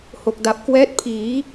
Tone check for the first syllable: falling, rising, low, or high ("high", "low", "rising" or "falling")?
low